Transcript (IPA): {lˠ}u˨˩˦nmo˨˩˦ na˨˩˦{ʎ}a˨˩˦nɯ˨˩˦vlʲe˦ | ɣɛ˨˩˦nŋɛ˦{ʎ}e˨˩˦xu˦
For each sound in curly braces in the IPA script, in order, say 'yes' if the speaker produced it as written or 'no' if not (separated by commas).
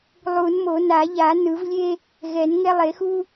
yes, yes, no